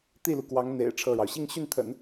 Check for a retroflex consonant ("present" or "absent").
present